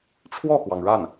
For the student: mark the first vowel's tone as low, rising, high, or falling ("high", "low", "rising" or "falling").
falling